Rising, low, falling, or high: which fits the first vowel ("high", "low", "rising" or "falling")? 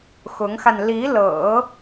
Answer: rising